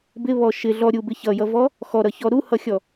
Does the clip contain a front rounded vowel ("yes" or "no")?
no